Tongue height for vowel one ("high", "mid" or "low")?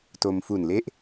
mid